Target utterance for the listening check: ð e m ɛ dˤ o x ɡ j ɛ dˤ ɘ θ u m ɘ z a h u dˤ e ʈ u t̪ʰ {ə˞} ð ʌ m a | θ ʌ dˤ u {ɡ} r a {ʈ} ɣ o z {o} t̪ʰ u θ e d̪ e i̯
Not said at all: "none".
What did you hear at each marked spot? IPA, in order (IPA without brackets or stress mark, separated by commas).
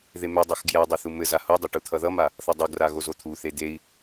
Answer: ʌ, ɡ, none, o